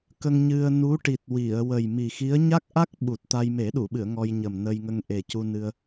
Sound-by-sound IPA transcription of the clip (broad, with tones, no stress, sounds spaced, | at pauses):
k ə˧ ŋ ɲ ɨ˧ ə̯ n u˧˥ ʈ i˨˩ t̚ w i˨˩˨ ə̯ w ə˨˩ j m i˨˩ x i˧˥ ə̯ ɲ a˦˥ k̚ ʔ a˦˥ k̚ ɓ u˨˩ t̚ t̪ a˧ j m e˨˩˦ ɗ u˨˩˨ ɓ ɨ˨˩˨ ə̯ ŋ ɔ˧ j ɲ ə˨˩ m n ə˧ j ŋ ə˧ ŋ ʔ e˨˩ c u˧ n ɨ˧ ə̯